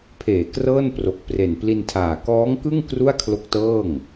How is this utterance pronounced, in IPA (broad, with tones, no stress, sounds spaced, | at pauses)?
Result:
pʰ eː˩˦ k r ɤː˥˩ n p r o˨˩ k̚ p r e˨˩ n p l i˧ n tʰ aː˨˩ k ɔː˦˥ ŋ k ɯ˥˩ ŋ k r u˥˩ a̯ kʰ l o˦˥ k̚ t ɤː˥˩ ŋ